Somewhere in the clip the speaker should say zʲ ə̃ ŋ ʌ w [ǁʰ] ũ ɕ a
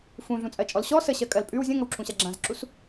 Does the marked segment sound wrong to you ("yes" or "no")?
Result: no